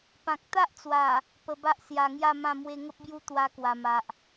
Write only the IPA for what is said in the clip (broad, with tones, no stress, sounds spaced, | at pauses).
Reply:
p ã˨ k̚ t̪ a˦ ʔ t͡s w a˨˩ | p ə˧ b a˦ ʔ s j a˨˩ ŋ j a˥˧ m ã˥˧ m w e˧ ŋ ə˦ p̚ b j u˦ t̪ w a˧ k w a˨˩ m a˨ ʔ